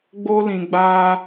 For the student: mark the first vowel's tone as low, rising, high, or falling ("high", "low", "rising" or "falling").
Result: high